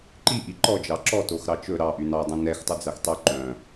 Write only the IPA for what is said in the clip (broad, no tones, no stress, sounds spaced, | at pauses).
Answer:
ǃ i ʔ i ǃ ɔ d͡ʒ ɑ ǁ ɔ t o x ɾ ɑ t͡ʃ ɵ ɾ ɑ ʔ y n ɑ dˤ ĩ n ɛ x tˤ u d͡z æ x tˤ y ǃ œ̃